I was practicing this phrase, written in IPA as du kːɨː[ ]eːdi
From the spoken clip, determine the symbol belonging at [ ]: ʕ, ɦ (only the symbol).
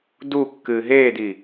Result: ɦ